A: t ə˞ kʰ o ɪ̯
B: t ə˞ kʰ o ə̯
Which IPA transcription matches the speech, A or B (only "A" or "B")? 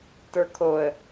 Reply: B